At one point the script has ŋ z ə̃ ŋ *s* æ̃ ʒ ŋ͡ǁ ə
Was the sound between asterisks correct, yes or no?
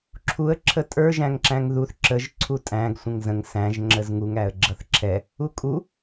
yes